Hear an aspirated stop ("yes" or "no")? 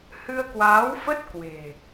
no